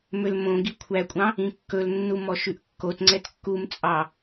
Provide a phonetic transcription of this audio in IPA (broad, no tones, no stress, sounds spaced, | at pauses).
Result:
m ø l m õ ɡ i kʷʰ æ kʷʼ ɑ̃ | ĩ kː ɵ l nː u m ɔ ʃ ʉ ʔ kː o t ŋ͡ǀ ɛ t kː u m t͡sʼ ɑ